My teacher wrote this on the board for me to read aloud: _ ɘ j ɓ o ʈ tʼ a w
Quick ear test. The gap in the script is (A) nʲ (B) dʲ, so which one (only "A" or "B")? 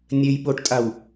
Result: A